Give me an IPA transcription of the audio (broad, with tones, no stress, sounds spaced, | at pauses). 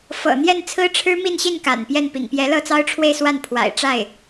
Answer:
f ɤ̰˨˩ n̪ j ɛ˥˩ n t͡sʰ ɹ̩˥ ʈ͡ʂʰ ɻ̩˥ m i˥˧ n ɕ i˥˩ n k a̰˨˩ n p j ɛ˥˩ n p ḭ˨˩ ŋ p j ɛ˧˥ l ɤ˥˩ t͡s ɑ˥ ʊ̯ ʈ͡ʂʰ w e˥˧ ɪ̯ s w a˥˩ n pʰ w a̰˨˩ ɪ̯ ʈ͡ʂ a˥˩ ɪ̯